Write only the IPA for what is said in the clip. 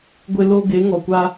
ɡʷ ɪ˦ l o˦ ɡ e˨˦ ŋ ɔ˨ kʷ a˦

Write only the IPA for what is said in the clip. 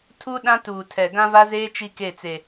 tʰ u˦ ɗ ã˦ t uː˨ tʰ ɛ˨ ɡ ã˦ v a˦ z eː˦ t͡ʃ i˦ k e˦˨ t͡s e˨

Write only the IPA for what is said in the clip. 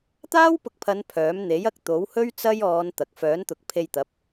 t̪ aː˥ w p ʊ˧ k̚ pʰ ɐ˨˧ n pʰ œː˨˥ m n̪ e˨˥ j ɐ˧ k̚ t̪ o˨˥ w h ɵ˥ ɥ t͡s ɐ˥ j ɔː˨˧ n t̪ ɐ˨ k̚ f œː˨˥ n t̪ ʊ˨˥ k̚ pʰ e˧ j t̪ ɐ˨˥ p̚

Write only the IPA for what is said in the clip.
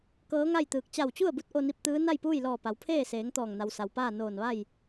k ɤː˧˥ ŋ a˥˨ j t̪ ɯː˧˩ k̚ t͡ɕ a˧˩ w t͡ɕ u˥˨ ə̯ b u˧˥ t̚ ʔ o˧ n i˧ p̚ t̪ ɯː˧˥ n a˥˨ j p uː˥˨ j l ɔː˧˩ p a˩˧ w pʰ eː˥˨ s eː˩˧ ŋ t̪ ɔː˧˩ ŋ n a˩ w s a˩ w p aː˥˨ n oː˧˩ n ʋ a˥˨ j

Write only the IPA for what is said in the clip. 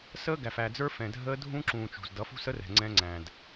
s əː˦ ɡ æ˨ f æ˨ d͡z ə˞˦ f ɛ̃˨ dʱ əː˦ dʱ ũ˦ ǁ ũː˨ t͡ʃ ṳ˨ z d ʌ˨˦ f ṳ˦ s ə˦ r ɛ̤˨ ŋ͡ǀ ɛ̃˦ ŋ͡ǀ æ̃˨ d

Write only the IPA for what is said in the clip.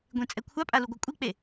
ɡʷ ẽ t͡sʼ ɛ kʷʰ a pʼ a l u ɡʷ a kʷʼ i k͡p e

